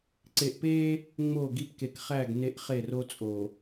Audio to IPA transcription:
ǀe˨ʔpe˦ | ŋ͡mo˦˨ɡi˦p ke˨kχæ˦˨ɡ ne˦ʔχe˦˨ro˦t͡sʼo˨

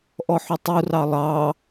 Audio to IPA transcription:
ʔɔħøtˤurɑ lˠɑ

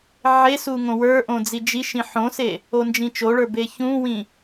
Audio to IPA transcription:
ʕesu ŋõwə˞ʔõ d͡zid͡ʒiʃĩ ħõse | ond͡ʒĩt͡ʃoɭə˞ beçũwĩ

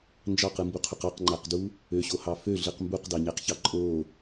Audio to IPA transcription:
nd͡ʒɑqɯmbuqʰuq ɑqŋ͡ǃæqdu | øɕohɑ føɮɯq mbuqdɑɲæqçɑ ǃʼo

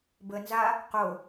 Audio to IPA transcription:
bənza | qo

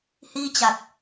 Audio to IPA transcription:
hiː˥˩t͡ɕa˨˩k̚

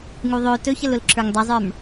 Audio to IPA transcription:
ŋuðˤø tɵçəlʊl ǁʰə˞ŋdˤəzˤə˞m

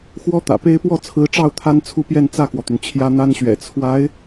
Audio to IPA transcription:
xwɔ˥t̪ä̰˨˩pe˥ɪ̯ pwɔ˥˩t͡sʰɹ̩˧˥ʈ͡ʂɑ˥˩ʊ̯ t̪ʰa˥nt͡sʰu˥˧ pjɛ˥˧nt͡sä˥˩kwɔ˩t̪y˩n t͡ɕʰjä˥n̪a˥nɕɥɛ̰˨˩ t͡sʰwa˧˥ɪ̯

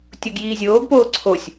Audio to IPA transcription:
tʲoɡjiːzʲoːɡpoː ǀʰosʲ

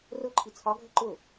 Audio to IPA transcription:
rʊ ǃʰit͡sʰɒ ɡʱəǃʊ

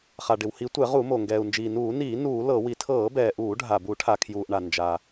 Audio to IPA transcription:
χa˩ɖɪ˩whi˧˩˧tʷɛ˧˩˧ ʁu˧˩˧mo˩ ŋɡɛː˩u̯nd͡ʒiː˩nuː˧˩˧ niː˧˩˧ nuː˧˩˧lɤ˧˩˧ wi˩tʰɤː˧˩˧bɛː˩ʔuː˧˩˧ ɖʱa˩bu˧˩˧ ʈʰa˩kʰjuː˩ʔɳa˩ nd͡ʒa˩

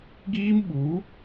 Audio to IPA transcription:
ɡiː˦mɓu˨˦

